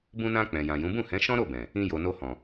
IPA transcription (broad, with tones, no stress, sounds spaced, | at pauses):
b ũ˧ n ã˧ k͡p ɛ̃˨ j ã˨ j ũ˨˦ b ũ˦˨ h ɛ̃˨˦ ʃ ɔ̃˦ ɾ o˦˨ b ɛ̃˨ | ĩ˧ j o˨ n o˧ h ɔ̃˨